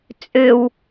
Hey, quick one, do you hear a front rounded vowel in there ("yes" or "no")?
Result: yes